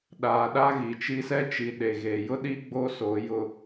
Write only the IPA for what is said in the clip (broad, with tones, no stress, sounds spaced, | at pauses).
ɗ aː˨ ɗ a˦ ɣ i˨ t͡ʃ i˦ s ɛ˦ t͡ʃ i˨ ɗ e˨ ɣ e˨ j ʊ˦ ɗ i˦ ɡ͡b o˦ s o˨˦ j ʊ˨